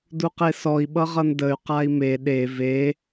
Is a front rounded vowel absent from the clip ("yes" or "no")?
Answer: no